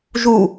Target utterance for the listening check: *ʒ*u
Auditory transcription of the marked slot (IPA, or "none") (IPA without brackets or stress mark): ʒ